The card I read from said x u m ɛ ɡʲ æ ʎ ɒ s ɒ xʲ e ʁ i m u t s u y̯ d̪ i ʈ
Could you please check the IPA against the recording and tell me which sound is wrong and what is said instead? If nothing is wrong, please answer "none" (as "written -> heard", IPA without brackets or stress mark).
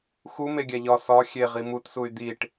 ɛ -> e